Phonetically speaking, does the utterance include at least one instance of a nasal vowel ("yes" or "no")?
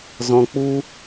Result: yes